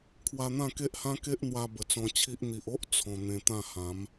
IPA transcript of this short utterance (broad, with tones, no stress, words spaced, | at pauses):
kʰwa˧n̪ã˥˧ke˦ʔhã˦ ke˦ʔn̪wa˧ bə˨˩t͡sɔ̃˧ t͡ɕʰi˦ʔ n̪i˨ʔo˦ʔ t͡sʰɔ̃˧ n̪ẽ˧t̪ã˥˧hã˨˦m